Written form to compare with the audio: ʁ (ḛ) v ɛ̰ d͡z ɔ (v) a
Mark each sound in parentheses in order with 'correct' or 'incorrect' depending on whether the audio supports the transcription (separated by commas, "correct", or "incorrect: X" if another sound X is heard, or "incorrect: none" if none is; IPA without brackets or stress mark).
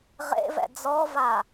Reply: correct, correct